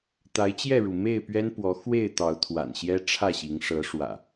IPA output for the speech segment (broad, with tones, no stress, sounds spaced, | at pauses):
t̪ a˨˦ ɪ̯ t͡ɕ j ɛ˥˨ ɻ u˩ m e˥˨ ɪ̯ p ɥ ɛ˦ n p w ɔ˨˦ x w e˥˨ ɪ̯ t̪ ɑ˨˦ ʊ̯ t̪ʰ w a̰˨˩ n ɕ j ɛ˦ ʈ͡ʂʰ ä˥˨ ɕ i˨˦ ŋ ʂ ɤ˨˦ ʂ w ä̰˨˩